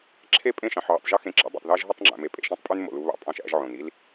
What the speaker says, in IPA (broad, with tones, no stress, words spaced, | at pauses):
ǁʰe˦˨ pʼẽ˦˨ʃɑ̃˨ħʕo̰˨tˤʒɯ˦ xẽ˨ǁɑ̰˨˦ dˤo̰˨tˤðæ˦ʒɦo˦tˤŋ͡ǁæ̰˨ me˨pʼḛ˨ʃẽ˦tˤpʼy˦n mo̰˨lu˦ βɑ̰˦ pʼɑ̃˦ʃæ̰˦ʒʕõ˨n i˦l